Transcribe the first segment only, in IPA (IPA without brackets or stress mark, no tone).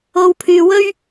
o